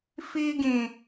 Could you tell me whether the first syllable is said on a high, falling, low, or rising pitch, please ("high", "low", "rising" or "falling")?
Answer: high